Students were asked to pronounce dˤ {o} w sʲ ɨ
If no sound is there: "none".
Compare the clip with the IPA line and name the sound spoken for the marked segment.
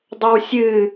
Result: o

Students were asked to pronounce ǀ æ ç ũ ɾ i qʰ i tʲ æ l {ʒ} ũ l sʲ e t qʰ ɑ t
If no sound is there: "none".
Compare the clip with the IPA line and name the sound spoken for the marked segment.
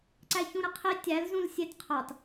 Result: z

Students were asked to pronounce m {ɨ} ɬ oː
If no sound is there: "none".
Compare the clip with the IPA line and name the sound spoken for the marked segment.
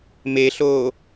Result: e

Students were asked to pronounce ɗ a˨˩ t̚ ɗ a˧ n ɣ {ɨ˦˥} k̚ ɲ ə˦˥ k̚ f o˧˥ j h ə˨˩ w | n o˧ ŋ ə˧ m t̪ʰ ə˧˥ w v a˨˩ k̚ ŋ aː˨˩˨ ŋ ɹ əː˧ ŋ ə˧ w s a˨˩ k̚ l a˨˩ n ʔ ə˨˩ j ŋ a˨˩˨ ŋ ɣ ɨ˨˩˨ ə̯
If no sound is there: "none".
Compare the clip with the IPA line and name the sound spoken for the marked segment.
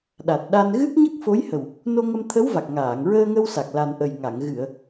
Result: ɨ˦˥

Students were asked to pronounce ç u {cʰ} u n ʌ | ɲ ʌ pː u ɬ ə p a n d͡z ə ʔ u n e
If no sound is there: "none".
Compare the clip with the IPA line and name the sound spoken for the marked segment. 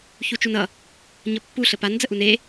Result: t͡ʃ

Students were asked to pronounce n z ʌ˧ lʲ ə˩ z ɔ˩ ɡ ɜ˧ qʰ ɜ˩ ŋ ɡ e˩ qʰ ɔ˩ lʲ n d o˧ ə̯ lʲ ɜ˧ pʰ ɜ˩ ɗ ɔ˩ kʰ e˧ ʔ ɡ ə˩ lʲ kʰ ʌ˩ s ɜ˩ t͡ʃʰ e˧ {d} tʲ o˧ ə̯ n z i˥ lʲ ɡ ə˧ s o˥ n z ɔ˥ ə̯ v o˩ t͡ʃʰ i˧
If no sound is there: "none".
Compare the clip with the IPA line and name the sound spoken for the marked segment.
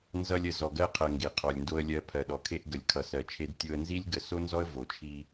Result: d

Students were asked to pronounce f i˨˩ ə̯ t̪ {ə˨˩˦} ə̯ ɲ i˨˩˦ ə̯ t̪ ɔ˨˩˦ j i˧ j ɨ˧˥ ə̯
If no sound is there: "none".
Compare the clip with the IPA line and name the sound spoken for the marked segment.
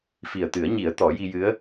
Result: ɨ˨˩˦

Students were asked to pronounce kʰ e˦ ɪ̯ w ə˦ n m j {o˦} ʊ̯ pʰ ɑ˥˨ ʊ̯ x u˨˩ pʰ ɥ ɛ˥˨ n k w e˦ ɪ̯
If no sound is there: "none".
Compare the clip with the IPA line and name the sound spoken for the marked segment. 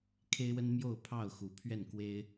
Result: o˥˨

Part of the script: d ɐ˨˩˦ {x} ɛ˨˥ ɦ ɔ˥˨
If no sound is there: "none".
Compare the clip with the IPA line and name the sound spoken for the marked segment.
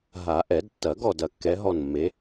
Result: kː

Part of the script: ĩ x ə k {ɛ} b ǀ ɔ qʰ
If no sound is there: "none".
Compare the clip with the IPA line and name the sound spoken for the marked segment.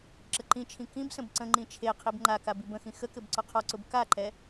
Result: ɘ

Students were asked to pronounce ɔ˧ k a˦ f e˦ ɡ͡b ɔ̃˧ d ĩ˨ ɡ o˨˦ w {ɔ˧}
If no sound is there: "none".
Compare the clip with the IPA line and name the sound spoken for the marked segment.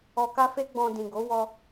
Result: ɔ˧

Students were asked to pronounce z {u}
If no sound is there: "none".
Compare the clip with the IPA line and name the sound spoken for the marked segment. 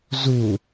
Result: u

